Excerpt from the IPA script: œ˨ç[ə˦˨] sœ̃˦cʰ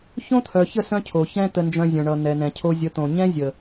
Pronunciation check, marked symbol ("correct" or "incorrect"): correct